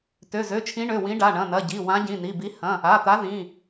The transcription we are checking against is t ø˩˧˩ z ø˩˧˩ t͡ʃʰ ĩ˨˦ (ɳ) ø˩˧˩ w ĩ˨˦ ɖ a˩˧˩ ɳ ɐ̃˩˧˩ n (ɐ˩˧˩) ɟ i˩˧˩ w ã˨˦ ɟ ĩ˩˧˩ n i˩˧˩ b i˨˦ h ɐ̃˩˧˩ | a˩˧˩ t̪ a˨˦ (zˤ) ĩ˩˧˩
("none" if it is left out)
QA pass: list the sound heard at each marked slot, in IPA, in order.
ɳ, ɐ˩˧˩, ð

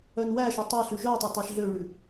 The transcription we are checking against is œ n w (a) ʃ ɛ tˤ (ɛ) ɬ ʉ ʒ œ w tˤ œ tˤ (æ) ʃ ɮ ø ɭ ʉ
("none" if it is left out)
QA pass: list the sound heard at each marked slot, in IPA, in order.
æ, ɛ, æ

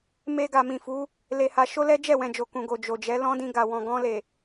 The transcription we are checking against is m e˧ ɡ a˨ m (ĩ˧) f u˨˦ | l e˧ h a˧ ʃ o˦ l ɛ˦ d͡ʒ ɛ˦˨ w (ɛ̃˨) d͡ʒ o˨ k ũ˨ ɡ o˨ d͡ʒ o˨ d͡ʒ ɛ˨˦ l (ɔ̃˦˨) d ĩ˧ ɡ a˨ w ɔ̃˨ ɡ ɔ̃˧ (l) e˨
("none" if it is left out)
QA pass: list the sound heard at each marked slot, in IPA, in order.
ĩ˨, ɛ̃˨, ɔ̃˦, l

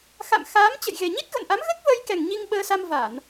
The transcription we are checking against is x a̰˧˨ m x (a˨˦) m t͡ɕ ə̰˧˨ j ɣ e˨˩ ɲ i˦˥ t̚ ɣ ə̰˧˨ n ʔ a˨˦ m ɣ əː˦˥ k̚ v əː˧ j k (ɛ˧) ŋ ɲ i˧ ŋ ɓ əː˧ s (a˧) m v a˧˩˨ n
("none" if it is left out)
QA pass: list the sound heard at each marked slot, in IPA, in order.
aː˨˦, ɛ˨˩, a˧

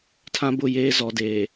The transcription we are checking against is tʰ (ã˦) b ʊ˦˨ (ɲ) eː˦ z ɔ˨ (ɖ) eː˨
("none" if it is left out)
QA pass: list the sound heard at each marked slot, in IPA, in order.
ã˦, j, d

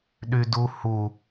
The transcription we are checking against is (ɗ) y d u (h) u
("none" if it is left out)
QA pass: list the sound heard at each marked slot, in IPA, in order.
ɗ, h

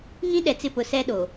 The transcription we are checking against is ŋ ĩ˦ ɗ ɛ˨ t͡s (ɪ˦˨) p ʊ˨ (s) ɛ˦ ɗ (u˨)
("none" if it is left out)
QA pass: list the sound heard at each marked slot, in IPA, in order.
ɪ˦˨, s, o˨

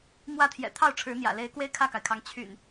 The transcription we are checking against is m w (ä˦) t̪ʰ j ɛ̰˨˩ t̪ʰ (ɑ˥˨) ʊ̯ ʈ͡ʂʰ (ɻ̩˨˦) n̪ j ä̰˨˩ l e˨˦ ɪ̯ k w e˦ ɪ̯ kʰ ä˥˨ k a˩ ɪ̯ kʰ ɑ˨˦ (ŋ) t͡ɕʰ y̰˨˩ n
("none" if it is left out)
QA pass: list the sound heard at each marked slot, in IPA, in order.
ä˥˨, ɑ˥˨, ɻ̩˨˦, ŋ

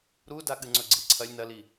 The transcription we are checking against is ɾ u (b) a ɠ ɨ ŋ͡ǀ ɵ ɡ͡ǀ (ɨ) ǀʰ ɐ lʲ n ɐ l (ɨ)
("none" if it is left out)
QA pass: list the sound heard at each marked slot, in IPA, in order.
d, i, i

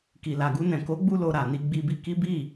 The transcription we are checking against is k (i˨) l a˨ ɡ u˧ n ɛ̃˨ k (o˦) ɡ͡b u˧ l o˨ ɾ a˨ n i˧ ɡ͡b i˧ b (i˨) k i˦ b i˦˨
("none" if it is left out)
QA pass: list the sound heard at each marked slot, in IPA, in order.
i˨, o˨˦, i˧

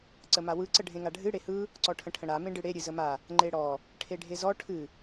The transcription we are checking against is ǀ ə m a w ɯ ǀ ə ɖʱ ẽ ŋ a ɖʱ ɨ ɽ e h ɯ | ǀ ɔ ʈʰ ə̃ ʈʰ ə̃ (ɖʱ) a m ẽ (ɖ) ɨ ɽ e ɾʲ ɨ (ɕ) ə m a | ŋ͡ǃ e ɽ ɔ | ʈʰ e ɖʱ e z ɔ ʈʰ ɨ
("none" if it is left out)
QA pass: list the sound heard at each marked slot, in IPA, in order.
ɽ, ɖ, z

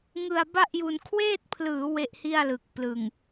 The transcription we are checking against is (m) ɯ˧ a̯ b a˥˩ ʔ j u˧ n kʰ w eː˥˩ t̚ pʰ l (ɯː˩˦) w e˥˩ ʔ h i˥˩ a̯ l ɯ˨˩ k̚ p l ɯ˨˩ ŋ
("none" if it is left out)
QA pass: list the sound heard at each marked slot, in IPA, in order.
ŋ, ɯː˩˦

